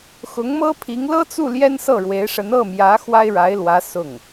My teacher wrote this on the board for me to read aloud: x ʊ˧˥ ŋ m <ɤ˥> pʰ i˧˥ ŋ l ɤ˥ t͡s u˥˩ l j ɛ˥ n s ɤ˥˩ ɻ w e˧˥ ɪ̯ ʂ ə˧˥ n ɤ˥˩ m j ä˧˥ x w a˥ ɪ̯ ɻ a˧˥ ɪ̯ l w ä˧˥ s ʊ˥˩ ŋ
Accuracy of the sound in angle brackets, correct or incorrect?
correct